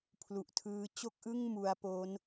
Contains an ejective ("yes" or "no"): no